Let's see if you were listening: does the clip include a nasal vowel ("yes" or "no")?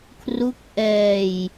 no